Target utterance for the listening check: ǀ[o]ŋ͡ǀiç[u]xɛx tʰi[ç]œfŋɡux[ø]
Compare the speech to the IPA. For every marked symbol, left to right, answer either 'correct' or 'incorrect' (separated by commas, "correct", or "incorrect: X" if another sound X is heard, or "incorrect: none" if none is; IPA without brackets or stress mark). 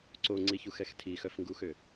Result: correct, correct, incorrect: x, correct